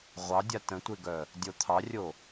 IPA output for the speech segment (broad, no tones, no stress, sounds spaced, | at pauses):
ʁʷ ɑ dʲ a t ə̃ tʷ e ɡ œ | dʲ o t̪ʰ ɑ rʲ o